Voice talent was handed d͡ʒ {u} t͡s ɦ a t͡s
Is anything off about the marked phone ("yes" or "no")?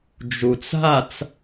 no